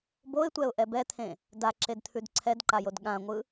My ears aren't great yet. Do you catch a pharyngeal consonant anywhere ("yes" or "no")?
no